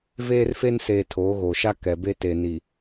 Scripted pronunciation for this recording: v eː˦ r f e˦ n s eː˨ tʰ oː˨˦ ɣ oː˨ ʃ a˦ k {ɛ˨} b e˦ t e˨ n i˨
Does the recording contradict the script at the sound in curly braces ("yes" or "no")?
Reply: no